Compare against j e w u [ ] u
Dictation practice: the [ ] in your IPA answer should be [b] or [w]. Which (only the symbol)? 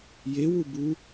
b